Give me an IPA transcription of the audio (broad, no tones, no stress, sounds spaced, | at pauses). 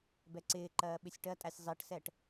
b ɛ ǀ ɪː ǃ ɜː ɓ ɪ sʲ ʈ ɜ tʼ æ sʲ zˤ i ʈ s ɛ ʈ